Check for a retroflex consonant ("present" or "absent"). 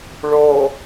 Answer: present